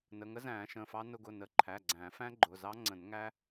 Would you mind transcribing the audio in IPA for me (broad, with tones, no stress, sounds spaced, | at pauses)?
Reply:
n ə˩˧˩ ŋ ə˦˥ z æ̃ː˨˩˦ ʃ ə̃˩˧˩ f ɑ˦˥ n ʊ˧ ɡ ʊ˩˧˩ n ə˨˩˦ ǃʰ æ˩˧˩ ɡ͡ǀ æ̃ː˨˩˦ f æ̃˦˥ ɡ͡ǃ ʊ˩˧˩ z ɑ˦˥ ŋ͡ǀ ə̃˨˩˦ n ŋ æ˦˥